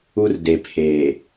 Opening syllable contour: high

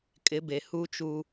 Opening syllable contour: rising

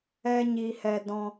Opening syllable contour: high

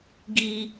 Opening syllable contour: high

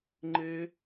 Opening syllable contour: high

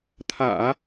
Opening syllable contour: low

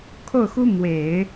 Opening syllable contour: falling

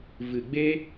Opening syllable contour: low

